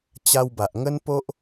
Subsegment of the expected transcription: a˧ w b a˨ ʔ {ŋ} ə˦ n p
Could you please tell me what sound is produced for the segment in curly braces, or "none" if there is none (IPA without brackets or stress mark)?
ŋ